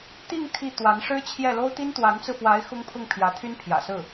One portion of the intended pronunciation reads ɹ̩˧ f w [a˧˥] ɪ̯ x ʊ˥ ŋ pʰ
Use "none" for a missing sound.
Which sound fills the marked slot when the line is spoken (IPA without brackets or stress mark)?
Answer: a˧˥